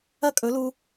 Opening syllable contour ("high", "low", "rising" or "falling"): high